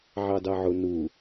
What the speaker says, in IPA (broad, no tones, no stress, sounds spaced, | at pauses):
ʕ ɑ d ɑ ʕ ʊ n u